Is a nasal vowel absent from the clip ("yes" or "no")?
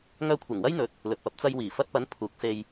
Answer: yes